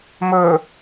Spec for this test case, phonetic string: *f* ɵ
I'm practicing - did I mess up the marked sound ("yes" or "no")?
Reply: yes